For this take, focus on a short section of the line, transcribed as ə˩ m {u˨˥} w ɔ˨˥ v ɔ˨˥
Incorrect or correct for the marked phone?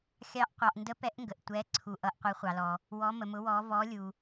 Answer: incorrect: ʊ˨˥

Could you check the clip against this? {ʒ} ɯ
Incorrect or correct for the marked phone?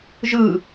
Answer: correct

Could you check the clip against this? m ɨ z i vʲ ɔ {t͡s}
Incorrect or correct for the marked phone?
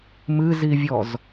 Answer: incorrect: z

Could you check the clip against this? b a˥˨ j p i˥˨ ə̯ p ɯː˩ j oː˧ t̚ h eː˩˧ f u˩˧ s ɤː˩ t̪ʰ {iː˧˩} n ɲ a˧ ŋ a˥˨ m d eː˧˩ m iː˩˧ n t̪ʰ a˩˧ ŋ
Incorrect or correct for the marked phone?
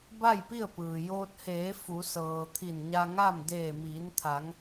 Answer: incorrect: i˧˩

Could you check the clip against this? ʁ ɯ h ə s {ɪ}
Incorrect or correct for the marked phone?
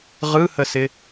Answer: correct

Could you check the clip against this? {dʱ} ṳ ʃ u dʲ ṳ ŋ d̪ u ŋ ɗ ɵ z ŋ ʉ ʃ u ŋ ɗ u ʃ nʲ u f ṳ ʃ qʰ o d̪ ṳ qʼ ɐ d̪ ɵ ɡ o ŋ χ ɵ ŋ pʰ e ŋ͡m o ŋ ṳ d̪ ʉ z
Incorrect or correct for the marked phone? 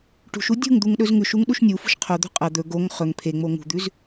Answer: incorrect: ʈ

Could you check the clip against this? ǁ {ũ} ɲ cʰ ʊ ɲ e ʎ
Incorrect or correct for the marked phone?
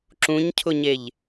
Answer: correct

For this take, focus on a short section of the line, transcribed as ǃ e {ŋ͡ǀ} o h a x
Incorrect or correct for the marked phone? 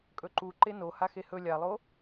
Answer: incorrect: n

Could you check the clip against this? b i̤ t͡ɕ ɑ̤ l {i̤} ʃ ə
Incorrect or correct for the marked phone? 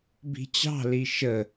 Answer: incorrect: i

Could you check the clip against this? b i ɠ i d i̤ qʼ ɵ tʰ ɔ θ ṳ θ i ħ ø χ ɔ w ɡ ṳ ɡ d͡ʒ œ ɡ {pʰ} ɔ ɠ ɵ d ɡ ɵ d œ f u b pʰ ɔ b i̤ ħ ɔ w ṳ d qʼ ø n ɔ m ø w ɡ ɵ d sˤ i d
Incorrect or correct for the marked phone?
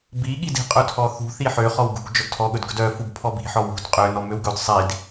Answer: incorrect: tʰ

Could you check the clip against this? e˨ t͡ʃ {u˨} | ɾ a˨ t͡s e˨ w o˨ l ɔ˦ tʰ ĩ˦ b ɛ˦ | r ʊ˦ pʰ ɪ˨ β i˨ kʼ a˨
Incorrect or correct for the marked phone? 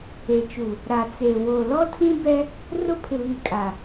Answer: correct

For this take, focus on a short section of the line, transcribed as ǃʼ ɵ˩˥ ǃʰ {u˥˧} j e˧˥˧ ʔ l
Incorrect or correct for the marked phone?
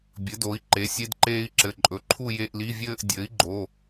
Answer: correct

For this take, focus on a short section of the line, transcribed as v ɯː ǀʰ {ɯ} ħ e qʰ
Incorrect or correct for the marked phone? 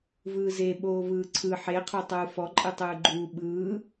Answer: correct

